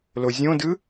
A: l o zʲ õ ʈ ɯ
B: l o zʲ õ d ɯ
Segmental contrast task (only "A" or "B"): B